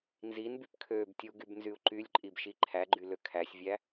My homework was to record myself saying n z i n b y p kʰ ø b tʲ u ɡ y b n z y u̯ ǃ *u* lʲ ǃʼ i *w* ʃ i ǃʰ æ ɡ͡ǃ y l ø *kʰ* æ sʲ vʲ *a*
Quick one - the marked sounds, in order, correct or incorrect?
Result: incorrect, incorrect, correct, incorrect

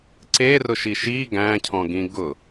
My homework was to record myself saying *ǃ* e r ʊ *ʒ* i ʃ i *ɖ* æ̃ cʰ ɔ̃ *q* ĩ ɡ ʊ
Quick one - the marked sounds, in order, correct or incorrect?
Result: incorrect, incorrect, incorrect, incorrect

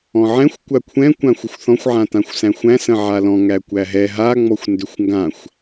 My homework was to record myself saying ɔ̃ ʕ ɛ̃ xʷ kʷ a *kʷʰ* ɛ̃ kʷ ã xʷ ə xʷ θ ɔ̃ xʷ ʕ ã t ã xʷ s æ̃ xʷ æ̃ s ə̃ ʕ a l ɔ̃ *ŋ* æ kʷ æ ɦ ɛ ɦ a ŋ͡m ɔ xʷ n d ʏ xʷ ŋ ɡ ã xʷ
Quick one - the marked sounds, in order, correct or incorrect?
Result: correct, correct

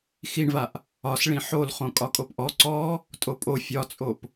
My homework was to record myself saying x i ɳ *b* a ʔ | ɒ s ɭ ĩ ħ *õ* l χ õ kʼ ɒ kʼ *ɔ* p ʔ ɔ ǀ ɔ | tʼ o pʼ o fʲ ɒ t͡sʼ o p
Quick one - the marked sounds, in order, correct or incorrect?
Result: incorrect, incorrect, incorrect

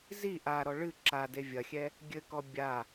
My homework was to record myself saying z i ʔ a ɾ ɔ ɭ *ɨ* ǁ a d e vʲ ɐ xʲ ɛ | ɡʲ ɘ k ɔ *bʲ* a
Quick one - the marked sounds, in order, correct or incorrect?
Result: correct, correct

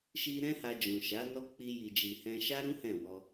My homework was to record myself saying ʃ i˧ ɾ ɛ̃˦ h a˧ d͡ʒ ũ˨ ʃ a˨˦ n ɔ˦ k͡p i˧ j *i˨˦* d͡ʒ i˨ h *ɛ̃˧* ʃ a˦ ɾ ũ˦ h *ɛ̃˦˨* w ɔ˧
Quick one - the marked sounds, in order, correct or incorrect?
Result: incorrect, correct, correct

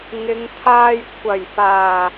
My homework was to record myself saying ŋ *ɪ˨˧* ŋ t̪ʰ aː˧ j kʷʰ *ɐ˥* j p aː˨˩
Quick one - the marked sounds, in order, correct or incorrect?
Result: correct, incorrect

